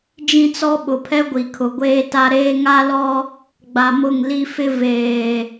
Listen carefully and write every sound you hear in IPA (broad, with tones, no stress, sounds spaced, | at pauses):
d͡ʒ ĩ˦ t͡s ɔ˦ ɓ ʊ˨ pʰ ɛ˦ ɡʷ i˨ kʰ ʊ˨ ɡʷ eː˦ t a˦ ɾ eː˦ ŋ a˦ l ɔ˦ | ɡ͡b a˨ m ʊ˦˨ ŋ l i˦ f ɪ˦ v eː˨